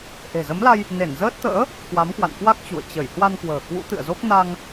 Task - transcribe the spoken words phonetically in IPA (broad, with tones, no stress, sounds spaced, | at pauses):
ʔ e̤˨˩ z ə˨˦ m l a˧ j | n e˧˩ n z əː˦˥ t̚ t̪ ə̰ː˧˥ | k w a˨˦ m k w a̰˧˨ n k w a˦˥ k̚ t͡ɕ ṵ˧˨ ə̯ t͡ɕ ə˧˩ j h w a˧ n k w ə̤ː˨˩ k w ṵ˧˥ t̪ ɨ̰˧˨ ə̯ z o˦˥ k̚ n a˧ ŋ